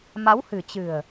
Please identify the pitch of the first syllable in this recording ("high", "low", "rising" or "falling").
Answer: rising